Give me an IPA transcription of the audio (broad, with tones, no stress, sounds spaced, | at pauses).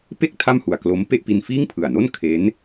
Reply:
p e˥˩ k̚ tʰ a˥˩ m h u˨˩ a̯ k l o˦˥ m p e˥˩ ʔ p i˧ n f iː˥˩ ŋ pʰ ɯ˨˩ a̯ n o˥˩ n kʰ e˦˥ n